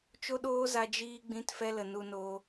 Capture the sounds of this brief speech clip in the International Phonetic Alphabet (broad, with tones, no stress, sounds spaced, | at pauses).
t͡ʃ o˦ ɗ oː˦ z a˧ d͡ʒ iː˧ ɡ͡b ĩ˦ t f ɛ˦ l ə˨ n u˧ n oː˧